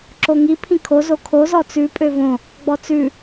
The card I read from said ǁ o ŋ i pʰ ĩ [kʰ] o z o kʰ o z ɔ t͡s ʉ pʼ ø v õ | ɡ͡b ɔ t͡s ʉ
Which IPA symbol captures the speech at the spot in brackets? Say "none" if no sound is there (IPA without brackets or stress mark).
kʰ